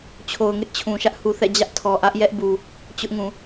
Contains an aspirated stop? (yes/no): yes